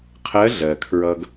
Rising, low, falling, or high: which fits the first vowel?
rising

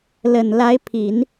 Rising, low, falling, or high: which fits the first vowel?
low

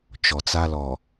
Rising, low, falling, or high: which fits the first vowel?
low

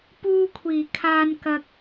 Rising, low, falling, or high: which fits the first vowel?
high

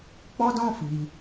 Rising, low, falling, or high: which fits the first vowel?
high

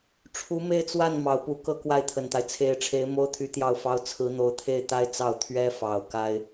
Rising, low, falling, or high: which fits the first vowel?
rising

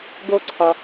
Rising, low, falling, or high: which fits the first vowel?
high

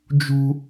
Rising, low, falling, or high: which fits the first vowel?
high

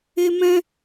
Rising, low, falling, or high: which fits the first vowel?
high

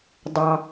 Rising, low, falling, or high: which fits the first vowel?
high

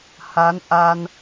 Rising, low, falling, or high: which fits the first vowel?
rising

